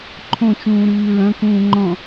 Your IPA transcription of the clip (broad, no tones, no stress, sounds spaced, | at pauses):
ǃʰ õ t͡ʃ ũː ɾ ɨː ɹ ɐ̃ k ũː ŋ͡ǃ ɔ̃